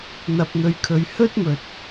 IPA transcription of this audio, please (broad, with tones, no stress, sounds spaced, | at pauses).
n̪ ɐ˨ p̚ n̪ ɵ˨ ɥ kʰ ɵ˨˧ ɥ h ɵ˥ t̚ m ɵ˨ t̚